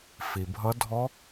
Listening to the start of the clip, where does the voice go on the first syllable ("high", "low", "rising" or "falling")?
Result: low